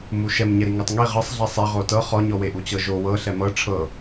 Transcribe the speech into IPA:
muʃɛm ɲɛɾiŋɤtˤŋi ʁɤsˤɮɛ sˤɛʁo tɤ χɔɲɔweʔu t͡ɕɤʒo wɤ ɬɛmɤ ʈ͡ʂʰɤ

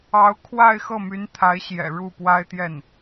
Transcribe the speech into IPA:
ɑ˧˥ʊ̯kʰwa˥˧ɪ̯ xɤ˥˩my˧˥nt̪ʰa˧˥ɪ̯ɕjɛ̰˨˩ ɻu˥˩pwa˥ɪ̯t̪jɛ˥˩n

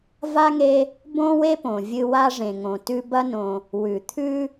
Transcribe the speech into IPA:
va˥ŋe˦ | bõ˥we˥põ˩ vʲɨ˦wa˥ʐẽ˨ ŋõ˩tʉ˦bɐ˥nõ˨ | wʉ˩t̪ʰʉ˥

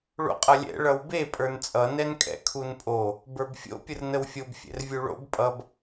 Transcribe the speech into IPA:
ɭo̰qʼʌlʲɛ̰ ɭʌwbe pʼə˞nt͡sʼʌ nɛnkʼɛ̰kʰunpʼo | bə˞bfʲo̰ pʲərnəwfʲob fʲɛ̰rvʲuɭo̰b pʼʌb

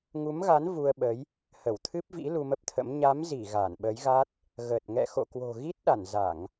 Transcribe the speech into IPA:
ŋu˨˦mɣa˨˦n vu˧ə̯ɓə˨˦j | hə˧˩wt̪ʰɨ˦˥p̚vḭ˧˥ lu˧mə˦˥p̚t̪ʰə̰˧˥m ɲa˨˦mzi˧˩ ɣa˧˩nɓə˨˦jɣa˦˥t̚ | ɣə˨˩t̚ ŋɛ̰˧˨xo̰˧˨ kwo̤˨˩ɣi˦˥t̚ɗa˧˩n za˧˩˨ŋ

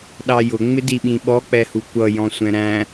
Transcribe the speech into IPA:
ɗɑjʊ ŋ͡mɪdiɓĩɓɔ k͡pɛhukʷʌ jɔ̃sʷɛ̃ɾæ̃

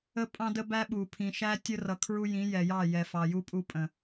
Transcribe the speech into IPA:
ə˦ pʼɑ̃˦də˦bæ˦ ɓu˨pʰĩ˨ʃæ˦ tʲə˦rʌ˨ kʰɹu˦jĩ˨˦jɛ˨jɑ˦˨ jɛ˨fɑ˨ju˦ pʼu˦pʼə̃˨

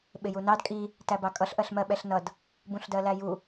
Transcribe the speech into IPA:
ɓɪjunɑd kʼi | tæbɑkʼʌɬ ʔɜɬmɜɓɛɬnʌd | bũɬdɜlæju

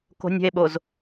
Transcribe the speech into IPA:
ko̤nʲə̤e̯ɓoz

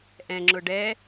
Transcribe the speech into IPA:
ʔɛ̃ŋ͡ǁʊ ɖɛ

